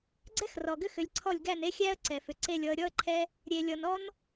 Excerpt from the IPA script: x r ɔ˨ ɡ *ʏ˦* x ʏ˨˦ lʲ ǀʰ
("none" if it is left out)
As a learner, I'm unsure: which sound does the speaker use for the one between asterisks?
ʏ˦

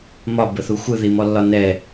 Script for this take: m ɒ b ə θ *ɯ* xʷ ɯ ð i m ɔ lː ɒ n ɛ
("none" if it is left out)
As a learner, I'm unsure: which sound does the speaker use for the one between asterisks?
u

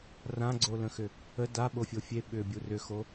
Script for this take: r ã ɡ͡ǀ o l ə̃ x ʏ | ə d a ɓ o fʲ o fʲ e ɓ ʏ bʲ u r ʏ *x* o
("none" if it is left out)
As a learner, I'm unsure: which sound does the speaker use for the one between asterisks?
x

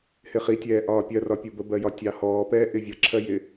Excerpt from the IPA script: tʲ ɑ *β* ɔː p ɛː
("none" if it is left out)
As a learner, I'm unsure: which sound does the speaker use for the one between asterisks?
h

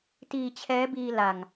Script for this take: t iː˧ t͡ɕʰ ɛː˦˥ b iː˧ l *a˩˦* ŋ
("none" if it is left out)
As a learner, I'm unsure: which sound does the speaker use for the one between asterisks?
a˨˩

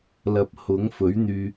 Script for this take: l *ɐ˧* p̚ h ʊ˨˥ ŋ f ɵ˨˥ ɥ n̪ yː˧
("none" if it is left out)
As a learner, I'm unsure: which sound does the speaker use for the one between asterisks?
ɐ˨˥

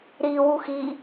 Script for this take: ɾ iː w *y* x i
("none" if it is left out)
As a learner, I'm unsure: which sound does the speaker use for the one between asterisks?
u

